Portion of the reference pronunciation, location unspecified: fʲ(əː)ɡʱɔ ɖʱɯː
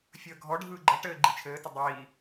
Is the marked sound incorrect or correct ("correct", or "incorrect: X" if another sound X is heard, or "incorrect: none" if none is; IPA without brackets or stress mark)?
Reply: correct